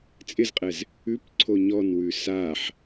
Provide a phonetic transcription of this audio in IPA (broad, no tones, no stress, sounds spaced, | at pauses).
t͡sʼ ɪ z qʼ ɛ z | ʉ p ǀʰ o ɲ ɔ n w ʉ s a ħ